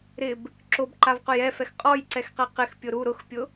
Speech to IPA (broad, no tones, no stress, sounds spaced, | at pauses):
ɾ ɪ b | ǁ o b ǃ a v q ʊ j ɛ f ɛ x qʼ ɔ j ǀ ɛ x q ɛ q ɪ x pʲ ʊ ɾ u ɾ ʊ x pʲ ʊ